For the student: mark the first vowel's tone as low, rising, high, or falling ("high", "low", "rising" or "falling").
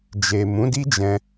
low